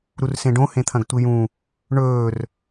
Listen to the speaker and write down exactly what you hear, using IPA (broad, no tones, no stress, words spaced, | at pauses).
ɾursẽɖõ hẽt̪ʰɐ̃ɡtʷijũ | ɳɵːr